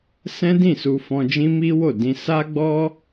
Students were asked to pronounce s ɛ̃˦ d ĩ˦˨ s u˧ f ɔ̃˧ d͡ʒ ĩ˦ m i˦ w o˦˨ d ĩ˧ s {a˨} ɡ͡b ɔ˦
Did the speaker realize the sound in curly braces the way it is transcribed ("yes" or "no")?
no